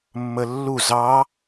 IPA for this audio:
mː ə lː u z ɑ

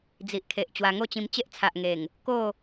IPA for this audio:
d͡z i˨ ʔ kʰ e˨ ʔ t͡ɕ w a˧ ŋ o˥˧ t͡ɕ ĩ˧ m t͡ɕ e˦ ʔ t͡sʰ a˨ ʔ ŋ e˨˩ ŋ | k o˥˧

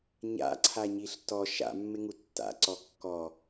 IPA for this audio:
ɲ a̰ ǀʰ a ɲ i ɬ t ɔ ʃ a̰ mː ɪ ŋ u tː a̰ ǀ ɔ kː ɔ

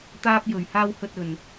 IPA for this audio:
t̪ aː˧ p̚ j ɵ˨˩ ɥ h aː˧ w h ɵ˨ t̚ ɵ˨˩ n

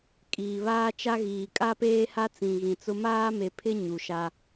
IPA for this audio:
kʼ iː˨ β aː˦ t͡ʃ a˦ ɣ iː˨ kʼ a˦ p eː˦ h a˦ t͡s ĩ˨ ɣ ĩ˨ t͡s ʊ˦ m aː˦ m e˨ pʰ ɪ˦ ɲ u˨ ʃ a˦

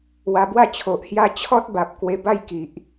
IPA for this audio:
w a˧ b w a˥˧ t͡ɕʰ o˨ ʔ h j a˦ t͡ɕʰ ɔ˦ t̚ b a˨ p̚ k w e˧ b a˦ j k i˨ ʔ

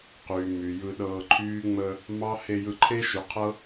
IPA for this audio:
q yː˨ m y˨ j ɯ˧ ɗ ɤː˧ ǃʰ yː˦ ŋ͡m ə˧ | m ɑ˦ h e˧ j ɯ˧ ǃʰ e˦ ʃ y˨˦ qʰ ɤ˦

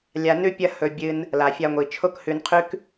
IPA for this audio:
lʲ a˧ n ʉ˦ pʲ ɐ˦ h ɵ˧ bʲ ɨ˧ n | l a˨ fʲ a˧ ŋʷ i˨ t͡ʃʰ o˦ k h ʉ˧ n qʰ ʉ˦ k

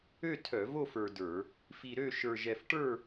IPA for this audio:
ø˥˨ tʰ œ˧˩˧ v o˥˨ f ə˞˧ d ə˞˧˩˧ | f i˧ ɾ ø˥˨ ʃ ə˞˧ ʒ ɛ˧ f ʈ ə˞˥˨

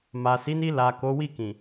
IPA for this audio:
m a˨ s i˨˦ n i˧ l a˨ k o˨˦ w i˦˨ k ĩ˨

